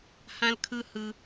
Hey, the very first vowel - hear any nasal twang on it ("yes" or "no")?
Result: yes